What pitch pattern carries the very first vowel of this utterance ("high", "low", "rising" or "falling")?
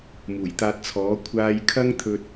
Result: low